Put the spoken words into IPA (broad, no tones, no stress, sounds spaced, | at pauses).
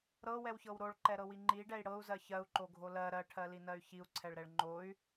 ɾ ɤ w ɛ w ç ɤ w ɾ o ɭ ǃ ɛ ɾ ɤ w i ŋ͡ǃ i ɖ ɛ i̯ ɽ ɤ u̯ z ɜ ç ɜ u̯ ǃ o ɡʱ o l ɜ ɾ ɜ ʈʰ ɜ l i n ɜ y̯ ç i u̯ ǀʰ ɛ ɭ ɾ ɛ ɭ ŋ͡ǃ o y̯